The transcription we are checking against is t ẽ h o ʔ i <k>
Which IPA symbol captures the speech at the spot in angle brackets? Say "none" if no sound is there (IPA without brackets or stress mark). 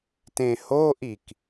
k